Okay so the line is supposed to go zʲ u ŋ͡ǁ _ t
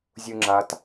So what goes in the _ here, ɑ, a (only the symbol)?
a